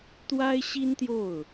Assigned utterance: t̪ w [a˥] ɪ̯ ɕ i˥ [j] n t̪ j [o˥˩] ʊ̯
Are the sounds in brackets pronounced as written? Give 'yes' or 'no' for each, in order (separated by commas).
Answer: yes, no, yes